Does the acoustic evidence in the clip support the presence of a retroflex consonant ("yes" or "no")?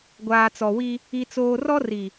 no